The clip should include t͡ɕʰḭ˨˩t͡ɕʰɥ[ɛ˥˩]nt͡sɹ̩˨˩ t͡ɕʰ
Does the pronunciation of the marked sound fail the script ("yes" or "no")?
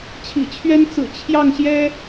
yes